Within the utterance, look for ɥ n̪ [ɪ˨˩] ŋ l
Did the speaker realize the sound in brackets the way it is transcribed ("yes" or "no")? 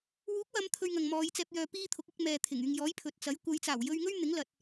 no